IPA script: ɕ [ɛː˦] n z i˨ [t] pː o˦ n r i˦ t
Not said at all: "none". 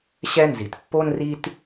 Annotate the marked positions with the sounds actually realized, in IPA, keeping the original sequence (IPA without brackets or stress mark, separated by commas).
ɛ˦, t